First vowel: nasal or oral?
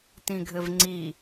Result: nasal